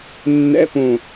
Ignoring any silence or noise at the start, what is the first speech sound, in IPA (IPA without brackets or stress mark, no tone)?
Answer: nː